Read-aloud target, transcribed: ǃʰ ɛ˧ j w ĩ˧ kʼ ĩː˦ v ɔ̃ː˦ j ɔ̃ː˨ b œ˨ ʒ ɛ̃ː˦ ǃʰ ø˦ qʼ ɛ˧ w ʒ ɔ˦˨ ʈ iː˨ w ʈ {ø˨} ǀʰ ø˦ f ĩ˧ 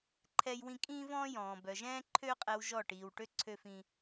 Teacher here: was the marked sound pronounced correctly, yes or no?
no